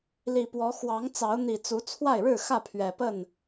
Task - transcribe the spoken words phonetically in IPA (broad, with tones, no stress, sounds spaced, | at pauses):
l i˨˩ p w ɔ˨˦ x w ɑ˨˦ ŋ t͡s ɑ˨˦ ʊ̯ n̪ i˨˩ t͡s u˨˦ t͡sʰ w a˥˨ ɪ̯ ɻ ɻ̩˥˨ x ä˥˨ pʰ ɥ ɛ˨˩ p ə˥˨ n